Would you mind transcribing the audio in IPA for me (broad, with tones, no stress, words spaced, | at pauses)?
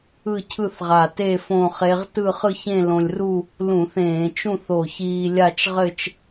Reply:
ɯ˥˧cʰɯ˥˧θʁa˧˩te˥˧ fõ˥˧χe˦˥ʁ tɯ˥˧χɯ˥˧çẽ˥˧ lõ˧lʲru˥˧ | lũ˧˩˧θẽː˧˩˧ t͡ʃũ˥˧θo˧˩çiː˧ lʲa˥˧t͡ʃʁɘ˥˧t͡ʃ